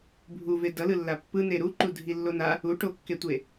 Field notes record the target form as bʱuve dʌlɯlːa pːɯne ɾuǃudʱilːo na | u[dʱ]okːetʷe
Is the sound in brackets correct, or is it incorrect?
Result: incorrect